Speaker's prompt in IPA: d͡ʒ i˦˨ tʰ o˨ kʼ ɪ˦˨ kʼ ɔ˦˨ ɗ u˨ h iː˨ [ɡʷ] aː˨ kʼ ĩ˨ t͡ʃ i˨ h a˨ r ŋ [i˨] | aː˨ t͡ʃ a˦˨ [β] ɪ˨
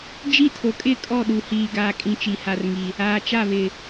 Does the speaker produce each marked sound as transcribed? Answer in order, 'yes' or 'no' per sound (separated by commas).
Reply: no, yes, yes